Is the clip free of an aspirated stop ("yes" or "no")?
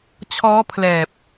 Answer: no